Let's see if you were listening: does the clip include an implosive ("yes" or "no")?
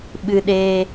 yes